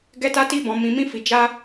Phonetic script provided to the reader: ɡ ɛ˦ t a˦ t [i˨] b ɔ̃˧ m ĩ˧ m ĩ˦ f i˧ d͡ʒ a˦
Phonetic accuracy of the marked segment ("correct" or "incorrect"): incorrect